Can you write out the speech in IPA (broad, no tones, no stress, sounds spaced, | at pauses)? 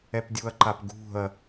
ɛ p dʲ u ɐ̯ ǃ a p ɡ ṳ ɐ̯